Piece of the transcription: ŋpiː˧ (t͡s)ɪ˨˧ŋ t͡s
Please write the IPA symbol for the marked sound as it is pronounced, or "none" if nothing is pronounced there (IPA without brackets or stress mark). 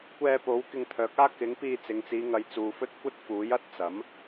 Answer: t͡s